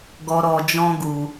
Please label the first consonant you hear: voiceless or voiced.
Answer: voiced